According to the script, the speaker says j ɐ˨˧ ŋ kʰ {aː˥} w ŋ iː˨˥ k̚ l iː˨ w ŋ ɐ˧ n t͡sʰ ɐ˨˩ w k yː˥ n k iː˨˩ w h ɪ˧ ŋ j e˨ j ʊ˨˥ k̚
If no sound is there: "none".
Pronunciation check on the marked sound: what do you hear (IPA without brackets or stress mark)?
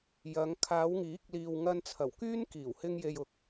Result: aː˨˧